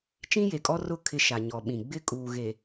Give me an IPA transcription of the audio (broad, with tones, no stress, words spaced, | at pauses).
t͡ʃĩ˦je˨kʼɔ˦rʊ˦˨ kʰɪ˦ʃa˨ ɲɔ˨ɓĩ˨ ɡ͡bɪ˦kʼuː˨ɣe˨